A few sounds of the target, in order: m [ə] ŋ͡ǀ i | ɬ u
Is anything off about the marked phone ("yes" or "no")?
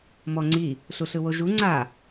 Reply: yes